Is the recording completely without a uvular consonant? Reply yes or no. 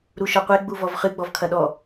no